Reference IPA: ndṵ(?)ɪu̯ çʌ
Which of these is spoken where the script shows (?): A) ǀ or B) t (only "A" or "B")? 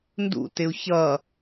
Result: B